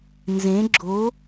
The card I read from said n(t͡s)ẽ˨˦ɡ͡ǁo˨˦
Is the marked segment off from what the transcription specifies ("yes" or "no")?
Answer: yes